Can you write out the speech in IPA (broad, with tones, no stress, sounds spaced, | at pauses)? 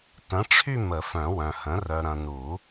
t ə̃˩˥ ʈ͡ʂʰ y˦˨ m ə˨˩˦ f œ̃˨˩˦ w œ̃˨ h ə̃˩˥ r œ˨ ɾ ɐ̃˨ n u˨˩˦